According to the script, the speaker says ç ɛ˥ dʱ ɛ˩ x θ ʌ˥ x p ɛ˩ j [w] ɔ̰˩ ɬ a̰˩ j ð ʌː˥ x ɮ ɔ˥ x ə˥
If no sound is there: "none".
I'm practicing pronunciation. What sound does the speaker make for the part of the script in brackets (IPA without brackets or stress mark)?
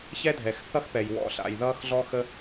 w